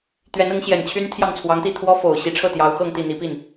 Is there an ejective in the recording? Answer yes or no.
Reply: no